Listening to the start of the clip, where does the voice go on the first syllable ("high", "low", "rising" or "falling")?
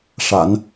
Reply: low